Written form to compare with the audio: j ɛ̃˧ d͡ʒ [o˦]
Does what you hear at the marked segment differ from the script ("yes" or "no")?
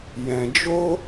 no